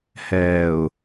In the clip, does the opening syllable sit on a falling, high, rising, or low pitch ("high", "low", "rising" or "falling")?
low